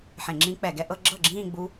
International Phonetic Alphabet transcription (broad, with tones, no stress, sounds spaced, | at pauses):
ħ ẽ˧˩˧ ŋ͡ǁ ĩ˦˥ k͡p ɛ˧˩˧ ɡ ɛ˥˧ ʔ ɤ˥˧ ɡ͡ǁ ɤ˥˩ ɡ͡ǁ ĩː˥˧ ɡ͡b u˦˥